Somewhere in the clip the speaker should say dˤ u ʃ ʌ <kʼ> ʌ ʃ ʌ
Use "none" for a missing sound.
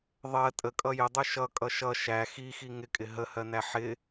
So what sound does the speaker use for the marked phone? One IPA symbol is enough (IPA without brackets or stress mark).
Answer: kʼ